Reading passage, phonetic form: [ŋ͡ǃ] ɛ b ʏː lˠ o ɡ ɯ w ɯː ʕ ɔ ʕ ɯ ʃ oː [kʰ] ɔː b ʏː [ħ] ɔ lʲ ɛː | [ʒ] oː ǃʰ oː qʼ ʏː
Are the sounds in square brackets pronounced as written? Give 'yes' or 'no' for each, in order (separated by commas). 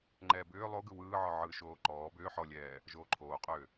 yes, no, yes, yes